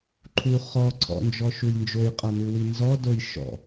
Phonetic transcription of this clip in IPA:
ǃʰ u χ ɔ ǀʰ ɔ̰ n d͡ʒ ɔ ʃ u j n d͡ʒ o j qʼ ʌ n u w i n z ɔ d o j ʃ ɔ̰

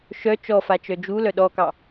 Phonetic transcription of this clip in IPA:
ʃ œ t͡ʃ ɔ f a t͡ʃ œ d͡ʒ u l œ ɗ ɔ k ɑ

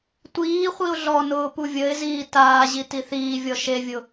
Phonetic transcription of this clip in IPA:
tʷ iː χʷ i ʊ̯ ɮ ɔ n ʊː p u vʲ ə ɪ̯ z iː t aː ʑ i t i θ iː vʲ ɔ ʃ e vʲ ʊ

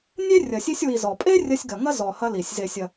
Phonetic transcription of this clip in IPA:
nʲ e˥ rʲ ɐ˨ sʲ e˦ sʲ w i˨ z ɔ˩ pʼ e˥ rʲ ɐ˦ sʲ ɡ ɐ˨ ŋ ɐ˥ z ɔ˨ h ɐ˦ l i˩ sʲ z e˨ sʲ ɐ˨

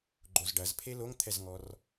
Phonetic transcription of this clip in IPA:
ɡ͡ǃ o z ɖ ɐ z pʰ e l o ŋ t̪ʰ ɛ z ŋ ɔ r

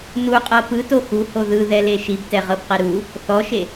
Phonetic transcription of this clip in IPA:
n u qʼ ɤ p ɯ t o x u h o ð ɯ ð ɛ l e ʃ i b t ɛ ʁ ɤ b q ɛ ɾ u | θ ɔ ʃ e

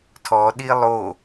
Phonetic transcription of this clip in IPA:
tʰ ɔ ɗ i lˠ o

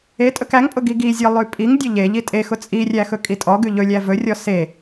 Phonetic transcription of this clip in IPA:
e tʼ ɵ k æ ŋ pʼ ʊ ɡ i ɡ i zʲ ɔ lˠ ʉ pʼ i ŋ dʲ ʊ ʎ e ʎ i tʼ e x ʊ t͡sʼ i rʲ æ x ɵ kʼ i tʼ ɔ ɡ ʉ ʎ ɵ lʲ æ v ɵ rʲ ɔ s e

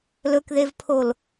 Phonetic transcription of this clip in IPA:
l ɵ k ð e v pʰ o l

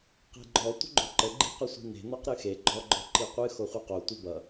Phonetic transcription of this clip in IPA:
q e̤ ɡ͡ǃ ɔ tʷ ə̤ ɡ͡ǃ o̤ ǃ ə ɡ͡ǃ i̤ q ʌ sʷ i̤ n e̤ n ɔ q ɾ ɨ x e ɡ͡ǃ ɔ ɡ͡ǃ ɔ ǃ i qʷ ɨ x o χʷ ɨ q o tʷ ə b ʌ

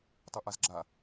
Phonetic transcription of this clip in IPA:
tˤ ə ʔ a z ɡ͡ǁ a

